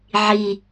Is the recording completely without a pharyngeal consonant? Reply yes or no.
no